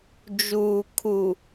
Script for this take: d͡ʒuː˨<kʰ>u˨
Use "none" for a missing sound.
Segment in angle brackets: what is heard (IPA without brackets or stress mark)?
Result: kʰ